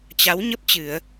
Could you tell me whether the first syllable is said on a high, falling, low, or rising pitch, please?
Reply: rising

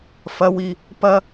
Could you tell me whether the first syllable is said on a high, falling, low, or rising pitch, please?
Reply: high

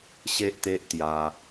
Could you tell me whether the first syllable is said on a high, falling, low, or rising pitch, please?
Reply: high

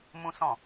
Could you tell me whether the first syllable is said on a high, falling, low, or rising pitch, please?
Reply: high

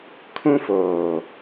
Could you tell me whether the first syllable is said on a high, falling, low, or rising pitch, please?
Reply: high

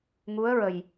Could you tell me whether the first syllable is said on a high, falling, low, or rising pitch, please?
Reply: rising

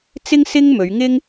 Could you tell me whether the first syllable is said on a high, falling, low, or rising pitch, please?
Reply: high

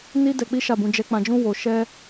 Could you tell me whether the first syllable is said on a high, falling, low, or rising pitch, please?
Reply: high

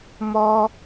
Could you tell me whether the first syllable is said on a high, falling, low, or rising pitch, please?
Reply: high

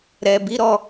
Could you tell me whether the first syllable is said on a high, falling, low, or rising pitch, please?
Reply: low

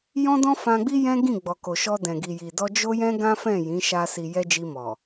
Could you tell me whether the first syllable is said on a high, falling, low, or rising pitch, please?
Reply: high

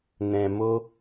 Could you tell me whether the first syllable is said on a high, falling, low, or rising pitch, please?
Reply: low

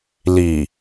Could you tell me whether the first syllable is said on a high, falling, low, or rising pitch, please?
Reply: low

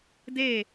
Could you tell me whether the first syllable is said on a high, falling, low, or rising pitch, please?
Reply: falling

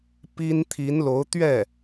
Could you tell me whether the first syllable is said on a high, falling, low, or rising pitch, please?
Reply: high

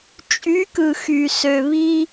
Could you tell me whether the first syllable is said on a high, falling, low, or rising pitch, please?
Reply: rising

